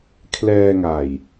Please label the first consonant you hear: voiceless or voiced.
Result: voiceless